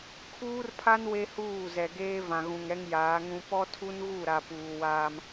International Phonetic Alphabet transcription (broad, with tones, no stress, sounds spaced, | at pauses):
kʰ uː˦ r pʰ a˦ n w e˦ h uː˦˨ z ɛ˨ ɡ eː˦ v ã˨ ɣ ũ˨ ŋ ɾ ɛ˦ ŋ j aː˨˦ ŋ ũ˦ p ɔ˦ tʰ u˦ n ɣ u˦˨ ɾ a˨ p uː˨ w aː˦ m